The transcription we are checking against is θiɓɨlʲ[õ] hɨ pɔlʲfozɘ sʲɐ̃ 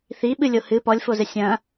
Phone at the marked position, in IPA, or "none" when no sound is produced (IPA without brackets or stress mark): o